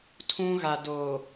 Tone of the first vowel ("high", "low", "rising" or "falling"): high